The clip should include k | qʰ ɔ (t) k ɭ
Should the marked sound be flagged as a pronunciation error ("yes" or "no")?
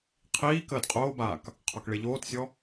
yes